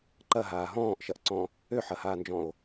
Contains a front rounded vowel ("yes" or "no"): yes